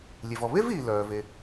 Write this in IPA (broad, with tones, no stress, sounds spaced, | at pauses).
lʲ e˩ v ɔ˩ β e˥ v iː˩ l œː˩ v e˩